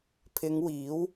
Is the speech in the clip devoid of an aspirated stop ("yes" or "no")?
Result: no